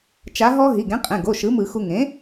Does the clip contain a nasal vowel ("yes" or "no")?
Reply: yes